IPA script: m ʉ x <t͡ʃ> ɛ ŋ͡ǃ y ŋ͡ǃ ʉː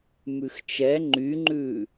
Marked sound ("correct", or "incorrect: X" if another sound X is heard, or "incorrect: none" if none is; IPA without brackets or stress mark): correct